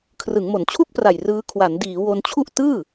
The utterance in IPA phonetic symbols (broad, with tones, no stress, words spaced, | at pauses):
kʰrɯ˩˦ŋmo˩˦nt͡ɕʰu˥˩k̚pra˨˩j rɯː˦˥ kʰwa˩˦ndiː˩˦ wo˧nt͡ɕʰu˥˩ʔ tɯː˥˩